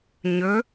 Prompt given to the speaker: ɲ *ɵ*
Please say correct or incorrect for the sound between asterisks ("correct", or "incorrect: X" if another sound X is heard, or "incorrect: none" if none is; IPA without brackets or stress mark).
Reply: correct